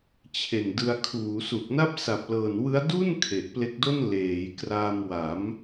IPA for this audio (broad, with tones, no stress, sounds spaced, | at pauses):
t͡ɕʰ e˨˩ n d ɯ˧ a̯ kʰ uː˩˦ s u˨˩ k̚ n a˥˩ p̚ s a˨˩ p̚ l ɤː˨˩ n w ɯ˦˥ a̯ d u˥˩ n kʰ e˨˩ ʔ p l e˦˥ k̚ d o˥˩ n l eː˩˦ j k r a˧ m w a˩˦ m